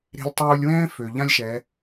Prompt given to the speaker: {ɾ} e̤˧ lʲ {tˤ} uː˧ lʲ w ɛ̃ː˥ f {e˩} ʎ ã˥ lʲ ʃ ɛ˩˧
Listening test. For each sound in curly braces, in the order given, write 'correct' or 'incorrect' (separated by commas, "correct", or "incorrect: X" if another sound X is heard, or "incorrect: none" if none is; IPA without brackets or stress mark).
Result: correct, correct, incorrect: ø˩